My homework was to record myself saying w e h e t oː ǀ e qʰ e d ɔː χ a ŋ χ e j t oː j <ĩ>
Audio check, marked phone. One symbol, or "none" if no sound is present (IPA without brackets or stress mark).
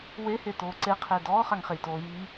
i